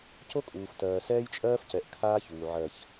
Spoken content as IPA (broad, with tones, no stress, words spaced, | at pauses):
co˦kʼuː˨f tɜː˨sɛː˦jt͡ʃʼɜː˦fcɛ˨ʔ kʰaː˦çuː˨ ʕɜ˨ç